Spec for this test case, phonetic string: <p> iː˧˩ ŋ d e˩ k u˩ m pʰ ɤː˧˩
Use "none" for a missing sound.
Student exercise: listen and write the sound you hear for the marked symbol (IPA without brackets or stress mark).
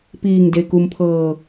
p